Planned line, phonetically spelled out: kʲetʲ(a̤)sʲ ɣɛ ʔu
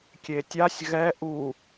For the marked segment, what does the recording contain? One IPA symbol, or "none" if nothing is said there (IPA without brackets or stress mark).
a